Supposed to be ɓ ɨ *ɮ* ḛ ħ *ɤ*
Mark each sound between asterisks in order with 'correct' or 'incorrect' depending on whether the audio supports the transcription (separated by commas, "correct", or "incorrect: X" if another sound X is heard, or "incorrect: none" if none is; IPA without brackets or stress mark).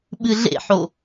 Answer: correct, incorrect: o